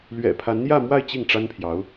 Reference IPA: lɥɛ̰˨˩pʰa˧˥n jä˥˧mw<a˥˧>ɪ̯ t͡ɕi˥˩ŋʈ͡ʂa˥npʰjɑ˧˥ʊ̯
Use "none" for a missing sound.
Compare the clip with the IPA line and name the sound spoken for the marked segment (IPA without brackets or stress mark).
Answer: a˥˧